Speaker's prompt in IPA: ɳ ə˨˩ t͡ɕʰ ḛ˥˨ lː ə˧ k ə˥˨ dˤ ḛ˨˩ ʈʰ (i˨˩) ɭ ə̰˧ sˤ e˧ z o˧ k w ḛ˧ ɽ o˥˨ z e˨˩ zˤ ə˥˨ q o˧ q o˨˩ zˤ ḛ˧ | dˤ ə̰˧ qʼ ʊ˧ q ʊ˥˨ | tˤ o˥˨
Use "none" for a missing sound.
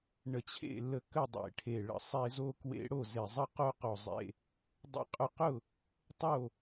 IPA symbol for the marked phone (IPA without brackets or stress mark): e˨˩